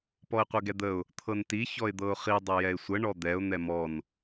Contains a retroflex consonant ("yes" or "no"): yes